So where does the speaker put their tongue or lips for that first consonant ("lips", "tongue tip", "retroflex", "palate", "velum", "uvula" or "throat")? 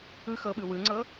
velum